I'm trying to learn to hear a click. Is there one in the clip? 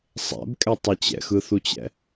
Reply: no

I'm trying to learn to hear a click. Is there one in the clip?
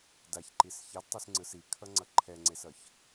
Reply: yes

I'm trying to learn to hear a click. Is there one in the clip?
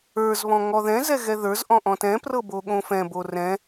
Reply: no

